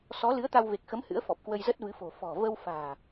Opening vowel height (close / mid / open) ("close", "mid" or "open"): mid